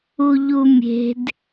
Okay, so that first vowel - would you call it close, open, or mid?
close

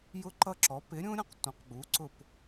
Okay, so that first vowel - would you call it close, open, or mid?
close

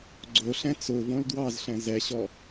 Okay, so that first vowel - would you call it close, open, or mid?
mid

